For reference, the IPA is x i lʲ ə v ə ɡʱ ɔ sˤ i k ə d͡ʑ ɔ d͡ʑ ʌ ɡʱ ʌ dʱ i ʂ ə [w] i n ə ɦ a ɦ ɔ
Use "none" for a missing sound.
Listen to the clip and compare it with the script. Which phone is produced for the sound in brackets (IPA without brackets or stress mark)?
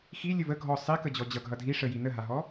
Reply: j